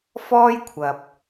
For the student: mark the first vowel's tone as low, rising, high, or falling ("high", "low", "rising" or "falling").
high